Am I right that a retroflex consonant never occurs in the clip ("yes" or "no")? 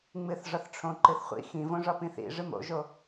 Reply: no